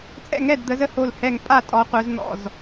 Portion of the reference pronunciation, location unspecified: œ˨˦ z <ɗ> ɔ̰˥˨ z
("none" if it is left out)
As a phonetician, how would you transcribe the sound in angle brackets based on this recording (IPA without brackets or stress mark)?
n̪